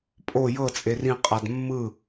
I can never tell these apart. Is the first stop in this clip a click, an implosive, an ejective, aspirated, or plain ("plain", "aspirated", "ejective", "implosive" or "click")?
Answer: ejective